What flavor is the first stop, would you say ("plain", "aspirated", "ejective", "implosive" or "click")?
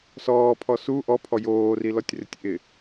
aspirated